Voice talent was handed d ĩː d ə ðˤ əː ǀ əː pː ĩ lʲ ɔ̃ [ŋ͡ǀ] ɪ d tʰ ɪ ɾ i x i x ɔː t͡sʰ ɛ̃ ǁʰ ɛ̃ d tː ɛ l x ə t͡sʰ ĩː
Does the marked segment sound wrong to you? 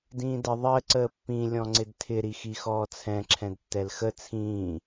no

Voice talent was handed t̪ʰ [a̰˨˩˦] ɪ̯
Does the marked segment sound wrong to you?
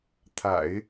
no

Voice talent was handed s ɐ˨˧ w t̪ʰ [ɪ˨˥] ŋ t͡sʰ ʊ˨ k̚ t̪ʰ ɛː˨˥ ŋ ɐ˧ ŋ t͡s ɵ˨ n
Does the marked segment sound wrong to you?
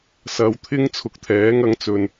yes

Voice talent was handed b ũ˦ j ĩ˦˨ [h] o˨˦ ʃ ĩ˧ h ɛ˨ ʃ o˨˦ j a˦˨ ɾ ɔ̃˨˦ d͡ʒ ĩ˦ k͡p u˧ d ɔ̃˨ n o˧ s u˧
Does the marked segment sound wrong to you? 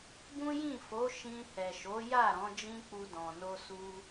yes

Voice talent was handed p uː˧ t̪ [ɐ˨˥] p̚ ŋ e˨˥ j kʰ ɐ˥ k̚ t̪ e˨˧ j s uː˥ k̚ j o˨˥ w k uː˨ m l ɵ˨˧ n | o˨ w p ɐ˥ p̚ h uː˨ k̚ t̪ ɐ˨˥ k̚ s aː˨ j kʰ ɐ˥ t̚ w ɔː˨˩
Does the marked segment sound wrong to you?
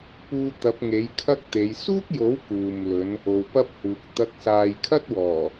no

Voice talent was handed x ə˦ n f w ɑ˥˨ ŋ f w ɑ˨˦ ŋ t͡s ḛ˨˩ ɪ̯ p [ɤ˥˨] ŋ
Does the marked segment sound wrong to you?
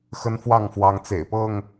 no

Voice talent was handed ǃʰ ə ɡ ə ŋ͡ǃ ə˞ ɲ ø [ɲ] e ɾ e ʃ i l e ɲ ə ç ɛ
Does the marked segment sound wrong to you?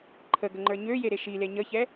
yes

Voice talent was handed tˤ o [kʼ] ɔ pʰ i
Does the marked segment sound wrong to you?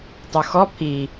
yes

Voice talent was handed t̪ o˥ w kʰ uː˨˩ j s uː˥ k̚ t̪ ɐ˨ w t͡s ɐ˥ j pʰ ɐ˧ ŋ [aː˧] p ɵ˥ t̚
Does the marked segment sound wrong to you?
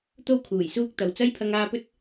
no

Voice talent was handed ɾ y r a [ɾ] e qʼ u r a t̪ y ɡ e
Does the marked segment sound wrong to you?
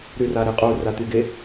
no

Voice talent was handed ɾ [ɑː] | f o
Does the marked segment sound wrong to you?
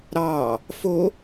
no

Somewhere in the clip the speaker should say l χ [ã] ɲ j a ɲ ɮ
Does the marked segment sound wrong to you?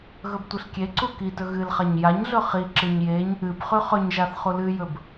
yes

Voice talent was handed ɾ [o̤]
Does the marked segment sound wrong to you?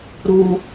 yes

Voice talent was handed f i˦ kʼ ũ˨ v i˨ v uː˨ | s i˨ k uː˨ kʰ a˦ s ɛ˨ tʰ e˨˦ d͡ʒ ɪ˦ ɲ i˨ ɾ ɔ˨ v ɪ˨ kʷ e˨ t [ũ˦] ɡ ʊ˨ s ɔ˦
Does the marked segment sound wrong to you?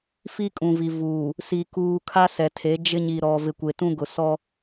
no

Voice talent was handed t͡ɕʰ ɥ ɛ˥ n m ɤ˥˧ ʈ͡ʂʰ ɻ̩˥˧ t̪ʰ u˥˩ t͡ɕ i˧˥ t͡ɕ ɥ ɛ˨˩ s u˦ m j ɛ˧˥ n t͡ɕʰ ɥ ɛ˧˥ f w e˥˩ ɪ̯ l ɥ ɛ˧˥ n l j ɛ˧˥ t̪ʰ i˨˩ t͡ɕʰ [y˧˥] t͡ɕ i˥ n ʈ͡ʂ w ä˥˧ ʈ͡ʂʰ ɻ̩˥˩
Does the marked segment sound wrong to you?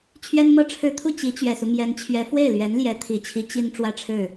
yes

